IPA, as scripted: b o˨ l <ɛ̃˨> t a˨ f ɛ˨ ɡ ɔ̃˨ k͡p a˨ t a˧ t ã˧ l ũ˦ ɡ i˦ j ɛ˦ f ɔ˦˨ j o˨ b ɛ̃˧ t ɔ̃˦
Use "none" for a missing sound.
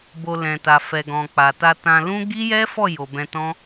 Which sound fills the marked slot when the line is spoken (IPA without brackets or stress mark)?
ɛ̃˨